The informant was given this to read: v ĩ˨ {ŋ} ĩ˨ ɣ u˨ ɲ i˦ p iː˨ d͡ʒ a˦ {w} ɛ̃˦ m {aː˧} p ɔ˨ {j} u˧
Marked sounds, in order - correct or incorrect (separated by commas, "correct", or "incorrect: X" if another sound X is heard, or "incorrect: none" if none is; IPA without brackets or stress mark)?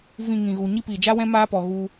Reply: correct, correct, incorrect: aː˦, incorrect: ɣ